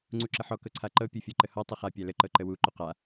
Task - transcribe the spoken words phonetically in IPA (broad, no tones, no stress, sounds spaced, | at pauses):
ŋ͡ǀ u ǁ ə ħ ɔ k ɤ ǀʰ a ǃ ɤ pʲ ɤ fʲ ɤ ǃ ə h ɔ tˤ ə χ a pʲ a l ə ǃ ɤ ǃ ə w u ǃ u q a